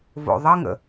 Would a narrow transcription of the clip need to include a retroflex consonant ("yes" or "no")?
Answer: no